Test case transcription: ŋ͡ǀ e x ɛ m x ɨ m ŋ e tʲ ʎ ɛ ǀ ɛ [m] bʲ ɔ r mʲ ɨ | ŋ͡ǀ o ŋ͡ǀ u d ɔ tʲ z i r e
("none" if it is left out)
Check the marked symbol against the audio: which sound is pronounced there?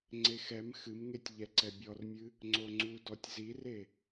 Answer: none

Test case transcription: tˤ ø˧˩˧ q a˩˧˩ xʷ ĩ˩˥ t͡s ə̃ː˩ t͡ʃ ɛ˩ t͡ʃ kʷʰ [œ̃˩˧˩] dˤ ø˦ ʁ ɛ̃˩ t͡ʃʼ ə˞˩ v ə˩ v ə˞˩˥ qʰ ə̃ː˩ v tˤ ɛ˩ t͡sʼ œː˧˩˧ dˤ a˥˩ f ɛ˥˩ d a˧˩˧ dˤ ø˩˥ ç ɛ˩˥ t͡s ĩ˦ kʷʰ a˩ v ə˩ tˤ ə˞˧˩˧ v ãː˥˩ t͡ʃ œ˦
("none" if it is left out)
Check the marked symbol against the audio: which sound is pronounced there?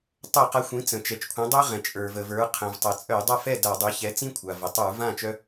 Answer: œ̃˩˥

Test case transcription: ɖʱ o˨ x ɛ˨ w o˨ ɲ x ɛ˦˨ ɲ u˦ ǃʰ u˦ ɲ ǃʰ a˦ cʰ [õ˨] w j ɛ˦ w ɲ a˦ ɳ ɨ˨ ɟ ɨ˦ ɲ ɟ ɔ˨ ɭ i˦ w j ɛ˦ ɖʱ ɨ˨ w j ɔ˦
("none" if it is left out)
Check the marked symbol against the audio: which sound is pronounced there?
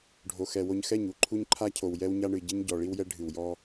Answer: o˨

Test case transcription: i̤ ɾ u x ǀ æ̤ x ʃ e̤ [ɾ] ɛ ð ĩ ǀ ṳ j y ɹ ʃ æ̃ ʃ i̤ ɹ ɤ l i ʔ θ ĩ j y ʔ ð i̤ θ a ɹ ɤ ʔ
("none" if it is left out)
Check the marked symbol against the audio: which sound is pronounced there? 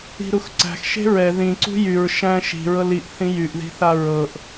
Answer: ɹ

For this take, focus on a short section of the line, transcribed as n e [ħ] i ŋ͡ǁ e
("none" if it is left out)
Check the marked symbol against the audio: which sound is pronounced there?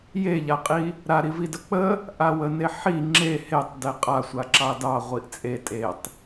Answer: ħ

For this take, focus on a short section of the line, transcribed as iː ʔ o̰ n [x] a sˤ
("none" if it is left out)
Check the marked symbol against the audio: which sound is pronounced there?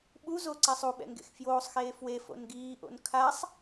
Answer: kʰ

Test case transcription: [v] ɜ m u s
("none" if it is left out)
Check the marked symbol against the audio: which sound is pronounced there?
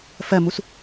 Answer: f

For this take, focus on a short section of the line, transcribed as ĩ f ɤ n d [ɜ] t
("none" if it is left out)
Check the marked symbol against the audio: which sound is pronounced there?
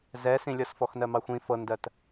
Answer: ɜ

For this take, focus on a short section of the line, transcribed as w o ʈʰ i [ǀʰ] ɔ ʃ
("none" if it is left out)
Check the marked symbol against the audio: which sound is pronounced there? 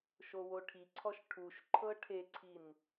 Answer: ǀʰ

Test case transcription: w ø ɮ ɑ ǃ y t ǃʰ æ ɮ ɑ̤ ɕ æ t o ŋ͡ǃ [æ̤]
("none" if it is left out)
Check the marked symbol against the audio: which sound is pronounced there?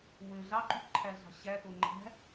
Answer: æ̤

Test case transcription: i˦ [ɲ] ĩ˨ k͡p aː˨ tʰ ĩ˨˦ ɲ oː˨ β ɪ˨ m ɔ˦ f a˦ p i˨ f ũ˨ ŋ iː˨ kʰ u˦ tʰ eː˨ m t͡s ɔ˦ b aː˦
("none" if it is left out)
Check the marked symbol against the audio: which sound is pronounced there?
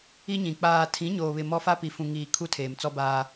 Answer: ɲ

